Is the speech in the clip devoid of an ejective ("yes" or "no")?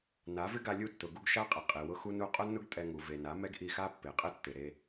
no